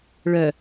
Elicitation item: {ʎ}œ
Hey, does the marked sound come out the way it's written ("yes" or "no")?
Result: no